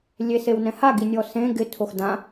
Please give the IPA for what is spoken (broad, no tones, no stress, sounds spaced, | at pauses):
lʲ e s e w n ɛ̃ h a ɡ i nʲ ɔ s ẽ ɡ ɪ tʰ o x d ã